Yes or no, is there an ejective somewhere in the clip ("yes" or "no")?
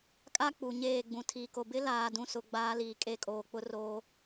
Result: yes